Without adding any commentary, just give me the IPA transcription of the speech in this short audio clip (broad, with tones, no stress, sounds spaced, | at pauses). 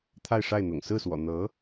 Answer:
t̪ʰ a˥˧ ɪ̯ ʂ a˥˩ ɪ̯ n̪ ʊ̰˨˩ ŋ s ɹ̩˥˩ s w ɔ̰˨˩ n̪ ɤ˧˥